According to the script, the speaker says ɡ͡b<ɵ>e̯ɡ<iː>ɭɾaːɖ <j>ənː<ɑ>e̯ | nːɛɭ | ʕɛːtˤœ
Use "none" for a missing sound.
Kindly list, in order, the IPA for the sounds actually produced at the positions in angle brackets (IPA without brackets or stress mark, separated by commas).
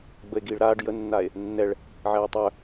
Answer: ə, iː, j, a